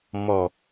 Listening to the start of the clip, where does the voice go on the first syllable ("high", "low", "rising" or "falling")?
low